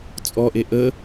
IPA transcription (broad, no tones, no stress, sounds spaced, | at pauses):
t͡sʼ ɔ ʔ e ʔ ə